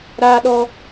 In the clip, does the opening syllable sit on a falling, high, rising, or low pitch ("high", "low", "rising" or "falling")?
high